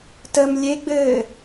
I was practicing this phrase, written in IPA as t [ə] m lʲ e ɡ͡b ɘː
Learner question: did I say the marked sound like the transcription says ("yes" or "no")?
yes